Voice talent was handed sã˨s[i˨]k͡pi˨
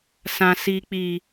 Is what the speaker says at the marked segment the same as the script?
yes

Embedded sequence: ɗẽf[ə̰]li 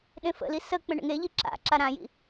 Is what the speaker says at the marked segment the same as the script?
yes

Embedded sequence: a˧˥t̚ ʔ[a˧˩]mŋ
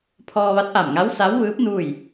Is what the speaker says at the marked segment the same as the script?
yes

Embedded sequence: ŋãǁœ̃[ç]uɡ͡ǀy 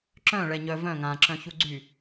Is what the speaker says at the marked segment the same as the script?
yes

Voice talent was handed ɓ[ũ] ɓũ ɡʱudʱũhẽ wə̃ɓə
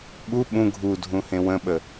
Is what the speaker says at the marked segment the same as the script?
no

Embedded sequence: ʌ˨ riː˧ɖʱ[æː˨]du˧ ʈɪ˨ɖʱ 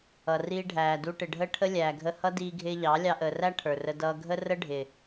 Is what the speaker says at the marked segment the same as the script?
yes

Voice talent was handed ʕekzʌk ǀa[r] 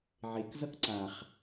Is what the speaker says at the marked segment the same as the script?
no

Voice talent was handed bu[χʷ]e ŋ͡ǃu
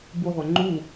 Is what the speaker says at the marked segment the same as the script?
no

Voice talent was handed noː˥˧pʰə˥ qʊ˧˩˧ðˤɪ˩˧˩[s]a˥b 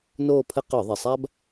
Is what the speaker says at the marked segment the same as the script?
no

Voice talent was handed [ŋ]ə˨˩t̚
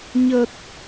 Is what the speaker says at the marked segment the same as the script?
no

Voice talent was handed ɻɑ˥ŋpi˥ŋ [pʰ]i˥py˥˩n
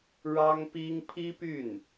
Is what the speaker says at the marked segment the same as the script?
yes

